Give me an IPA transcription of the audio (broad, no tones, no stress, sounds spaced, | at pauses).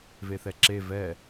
v e θ ɛ ǁ e v ɛ